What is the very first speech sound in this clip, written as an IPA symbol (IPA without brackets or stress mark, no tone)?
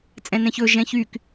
t͡sʼ